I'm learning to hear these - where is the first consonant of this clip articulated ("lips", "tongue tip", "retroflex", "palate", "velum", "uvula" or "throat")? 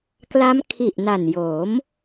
velum